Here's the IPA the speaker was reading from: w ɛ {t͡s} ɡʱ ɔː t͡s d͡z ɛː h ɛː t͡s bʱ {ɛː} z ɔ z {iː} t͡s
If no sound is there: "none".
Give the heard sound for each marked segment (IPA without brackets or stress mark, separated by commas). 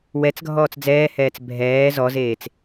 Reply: t͡s, ɛː, eː